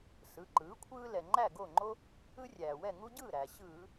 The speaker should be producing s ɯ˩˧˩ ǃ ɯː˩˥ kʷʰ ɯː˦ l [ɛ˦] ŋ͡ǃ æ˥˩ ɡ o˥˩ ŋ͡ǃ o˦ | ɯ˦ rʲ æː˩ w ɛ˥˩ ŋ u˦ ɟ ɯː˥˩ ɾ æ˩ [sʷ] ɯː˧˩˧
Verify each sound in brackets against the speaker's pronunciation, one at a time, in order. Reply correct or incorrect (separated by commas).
incorrect, incorrect